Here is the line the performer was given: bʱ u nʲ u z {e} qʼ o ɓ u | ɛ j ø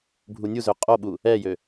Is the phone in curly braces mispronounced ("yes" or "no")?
yes